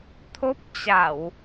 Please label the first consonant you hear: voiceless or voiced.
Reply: voiceless